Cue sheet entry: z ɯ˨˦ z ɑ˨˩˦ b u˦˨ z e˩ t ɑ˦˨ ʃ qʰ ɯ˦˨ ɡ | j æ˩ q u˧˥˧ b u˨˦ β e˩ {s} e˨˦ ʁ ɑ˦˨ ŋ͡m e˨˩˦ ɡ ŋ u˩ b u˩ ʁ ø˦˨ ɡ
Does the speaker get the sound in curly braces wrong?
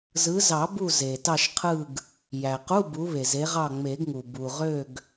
yes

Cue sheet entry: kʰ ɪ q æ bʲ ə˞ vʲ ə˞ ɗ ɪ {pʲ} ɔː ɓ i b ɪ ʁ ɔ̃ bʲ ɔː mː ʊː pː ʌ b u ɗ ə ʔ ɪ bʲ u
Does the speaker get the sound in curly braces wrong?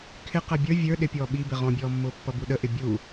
no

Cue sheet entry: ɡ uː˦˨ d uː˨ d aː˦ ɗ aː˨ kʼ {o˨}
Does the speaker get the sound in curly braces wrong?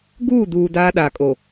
no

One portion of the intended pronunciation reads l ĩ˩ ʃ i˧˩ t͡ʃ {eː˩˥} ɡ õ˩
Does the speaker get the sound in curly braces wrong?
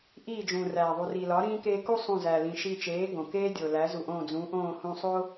no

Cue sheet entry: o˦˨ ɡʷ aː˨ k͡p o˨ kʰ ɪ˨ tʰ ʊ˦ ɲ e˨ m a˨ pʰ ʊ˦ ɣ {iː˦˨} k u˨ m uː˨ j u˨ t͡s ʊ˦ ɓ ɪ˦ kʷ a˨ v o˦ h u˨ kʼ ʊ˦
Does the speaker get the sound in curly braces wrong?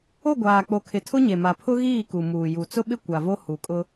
no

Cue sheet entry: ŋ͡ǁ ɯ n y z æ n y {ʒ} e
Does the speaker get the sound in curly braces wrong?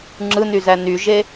no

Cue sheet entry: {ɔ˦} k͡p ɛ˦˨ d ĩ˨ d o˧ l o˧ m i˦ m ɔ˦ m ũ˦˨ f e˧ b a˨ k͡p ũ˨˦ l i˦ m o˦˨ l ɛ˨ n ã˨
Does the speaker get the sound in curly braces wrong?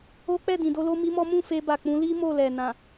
yes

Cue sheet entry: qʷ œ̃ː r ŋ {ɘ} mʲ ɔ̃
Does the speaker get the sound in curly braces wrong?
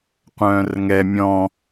yes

